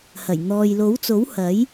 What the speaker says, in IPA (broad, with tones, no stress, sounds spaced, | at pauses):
h ɐ˨˩ j n̪ ɔː˨ j l o˨˥ w t͡s o˨˥ w h ɐ˨˥ j